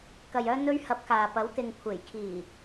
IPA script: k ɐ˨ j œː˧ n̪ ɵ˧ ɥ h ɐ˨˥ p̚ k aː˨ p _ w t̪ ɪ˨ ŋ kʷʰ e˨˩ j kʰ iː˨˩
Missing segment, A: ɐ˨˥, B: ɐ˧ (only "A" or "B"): A